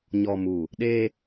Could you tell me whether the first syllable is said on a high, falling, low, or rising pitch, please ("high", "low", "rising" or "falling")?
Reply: low